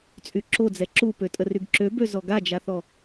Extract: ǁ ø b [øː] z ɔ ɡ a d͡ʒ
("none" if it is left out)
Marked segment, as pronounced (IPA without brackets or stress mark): ø